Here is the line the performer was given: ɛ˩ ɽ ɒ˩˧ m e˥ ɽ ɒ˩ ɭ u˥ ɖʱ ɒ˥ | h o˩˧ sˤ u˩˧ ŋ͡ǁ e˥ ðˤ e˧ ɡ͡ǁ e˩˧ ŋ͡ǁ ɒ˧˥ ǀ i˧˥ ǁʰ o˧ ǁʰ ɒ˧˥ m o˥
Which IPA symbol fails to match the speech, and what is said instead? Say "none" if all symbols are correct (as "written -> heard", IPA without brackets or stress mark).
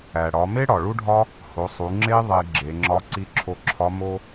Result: ɛ˩ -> æ˩